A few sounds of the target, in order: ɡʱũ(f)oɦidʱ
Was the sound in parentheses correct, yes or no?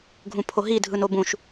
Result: no